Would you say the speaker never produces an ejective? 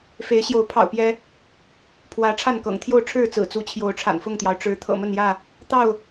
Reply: yes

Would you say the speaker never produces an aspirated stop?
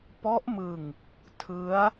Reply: no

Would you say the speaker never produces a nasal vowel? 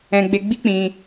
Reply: no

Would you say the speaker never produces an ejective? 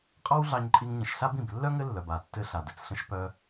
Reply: no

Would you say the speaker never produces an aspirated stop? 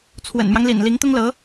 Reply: no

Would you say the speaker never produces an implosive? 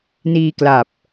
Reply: yes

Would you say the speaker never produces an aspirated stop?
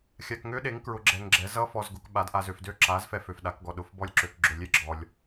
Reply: yes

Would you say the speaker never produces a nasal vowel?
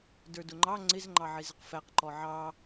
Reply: yes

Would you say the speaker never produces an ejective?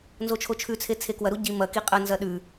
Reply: no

